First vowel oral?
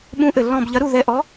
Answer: no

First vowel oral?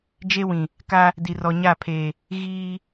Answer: yes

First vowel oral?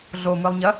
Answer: yes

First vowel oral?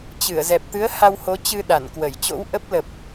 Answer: yes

